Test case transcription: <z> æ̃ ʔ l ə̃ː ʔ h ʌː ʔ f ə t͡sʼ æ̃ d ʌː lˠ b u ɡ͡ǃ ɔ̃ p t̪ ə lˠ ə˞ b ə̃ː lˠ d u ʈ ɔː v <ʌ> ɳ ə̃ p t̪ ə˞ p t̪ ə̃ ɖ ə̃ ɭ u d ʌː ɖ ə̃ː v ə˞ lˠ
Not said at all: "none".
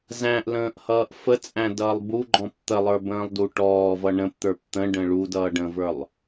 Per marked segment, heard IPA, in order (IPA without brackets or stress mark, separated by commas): z, ʌ